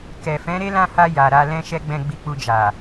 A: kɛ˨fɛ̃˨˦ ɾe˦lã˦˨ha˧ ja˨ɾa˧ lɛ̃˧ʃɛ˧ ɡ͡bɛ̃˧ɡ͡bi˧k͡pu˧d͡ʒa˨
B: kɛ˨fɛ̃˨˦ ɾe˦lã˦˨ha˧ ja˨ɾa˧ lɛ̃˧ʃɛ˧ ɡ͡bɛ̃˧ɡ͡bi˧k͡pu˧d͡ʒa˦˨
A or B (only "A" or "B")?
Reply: A